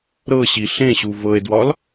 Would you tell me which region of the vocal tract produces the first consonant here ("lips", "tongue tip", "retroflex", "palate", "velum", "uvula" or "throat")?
tongue tip